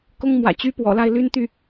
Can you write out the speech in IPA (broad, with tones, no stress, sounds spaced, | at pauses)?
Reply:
k ʊ˥ ŋ m w ä̰˨˩ t͡ɕ y˥ p w ɔ̰˨˩ l a˥˩ ɪ̯ l y˥ n t̪ y˥˩